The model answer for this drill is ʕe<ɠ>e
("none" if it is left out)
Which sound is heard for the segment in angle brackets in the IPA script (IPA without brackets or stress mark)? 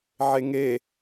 ŋ